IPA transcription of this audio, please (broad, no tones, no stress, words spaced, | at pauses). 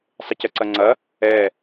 sˤəcəǀɐŋ͡ǀɐ | ɛ